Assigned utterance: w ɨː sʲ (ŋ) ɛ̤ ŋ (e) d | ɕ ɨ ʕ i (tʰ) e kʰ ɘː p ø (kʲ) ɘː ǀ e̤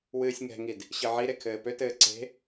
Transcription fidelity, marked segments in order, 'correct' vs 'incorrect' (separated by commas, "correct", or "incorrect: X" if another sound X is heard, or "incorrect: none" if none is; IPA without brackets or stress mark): correct, incorrect: i, incorrect: ɾ, incorrect: t